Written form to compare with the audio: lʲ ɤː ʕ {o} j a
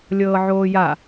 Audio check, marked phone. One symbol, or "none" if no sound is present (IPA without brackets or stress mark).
oː